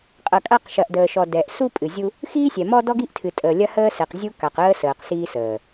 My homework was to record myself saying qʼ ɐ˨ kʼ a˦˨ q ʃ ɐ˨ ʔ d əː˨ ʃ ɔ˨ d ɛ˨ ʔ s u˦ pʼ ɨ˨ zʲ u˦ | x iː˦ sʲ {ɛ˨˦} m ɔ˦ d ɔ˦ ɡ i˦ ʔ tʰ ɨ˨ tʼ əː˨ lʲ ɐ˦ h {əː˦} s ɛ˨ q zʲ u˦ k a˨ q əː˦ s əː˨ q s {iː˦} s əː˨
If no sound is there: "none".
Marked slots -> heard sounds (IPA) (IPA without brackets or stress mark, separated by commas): ɛ˨, əː˦, iː˦